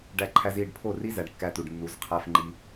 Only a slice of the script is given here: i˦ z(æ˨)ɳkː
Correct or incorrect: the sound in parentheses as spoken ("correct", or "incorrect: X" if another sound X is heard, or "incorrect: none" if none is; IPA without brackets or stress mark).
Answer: correct